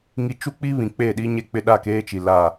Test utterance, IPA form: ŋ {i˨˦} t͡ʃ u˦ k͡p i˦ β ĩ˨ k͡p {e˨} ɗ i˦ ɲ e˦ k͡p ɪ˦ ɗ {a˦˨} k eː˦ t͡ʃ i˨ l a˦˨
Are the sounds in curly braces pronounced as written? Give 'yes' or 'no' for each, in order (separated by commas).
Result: no, no, yes